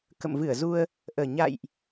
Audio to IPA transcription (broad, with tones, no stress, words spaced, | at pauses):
kə̰˧˨mvɨ˧˩ə̯zu˧ə̯ | ʔəː˨˩ ɲa̰˧˨jʔ